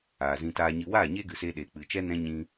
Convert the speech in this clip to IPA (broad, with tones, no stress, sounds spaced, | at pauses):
aː˨ z ĩ˧ t aː˧ ɲ ɨ˧ w aː˦˨ ɲ eː˦ ɡ ɨ˨ s eː˧ ɗ eː˨ k͡p ɨ˨ t͡ʃ ɛ˦ n ɛ̃˦ ɲ ĩ˧